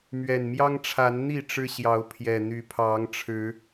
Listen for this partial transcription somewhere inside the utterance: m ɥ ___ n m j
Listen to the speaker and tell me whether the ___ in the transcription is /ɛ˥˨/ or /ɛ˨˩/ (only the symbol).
ɛ˨˩